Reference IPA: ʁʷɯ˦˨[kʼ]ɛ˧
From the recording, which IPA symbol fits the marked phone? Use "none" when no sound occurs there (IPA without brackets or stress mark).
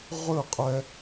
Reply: qʼ